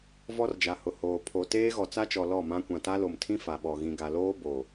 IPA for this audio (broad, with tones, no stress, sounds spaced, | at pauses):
v ɔ˦ r d͡ʒ a˨ h ʊ˨ h oː˨ pʰ o˨ t eː˦ ɣ ɔ˨ t͡s a˦ t͡ʃ ɔ˨ l ɔ˦˨ m ã˦ kʷ ã˨ t a˦ l o˨ m tʰ ĩ˦ f a˨ ɓ ɔ˨ ɣ ĩ˨ ɡ a˨ l oː˦ b o˨